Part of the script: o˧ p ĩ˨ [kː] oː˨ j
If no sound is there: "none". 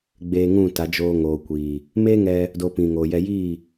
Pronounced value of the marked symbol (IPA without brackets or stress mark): ŋ